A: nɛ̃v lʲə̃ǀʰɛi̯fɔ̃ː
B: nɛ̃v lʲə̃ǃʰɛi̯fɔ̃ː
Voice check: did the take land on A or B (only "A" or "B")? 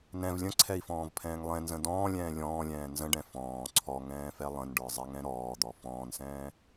A